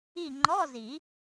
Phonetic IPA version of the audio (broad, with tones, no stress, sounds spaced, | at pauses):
i˦˨ ŋ͡ǃ ɔ˧˥˧ z i˨˩˦